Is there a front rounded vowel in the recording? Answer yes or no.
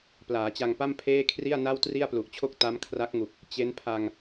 no